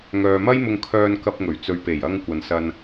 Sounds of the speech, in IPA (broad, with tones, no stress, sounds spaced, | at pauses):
ŋ œː˨ m ɐ˥ j m ʊ˧ ŋ kʰ œː˧ n k ɐ˧ p̚ ŋ ɵ˨˩ ɥ t͡s ɵ˨ ɥ p e˨˩ j ɐ˧ ŋ kʷ ɐ˨ n s ɐ˧ n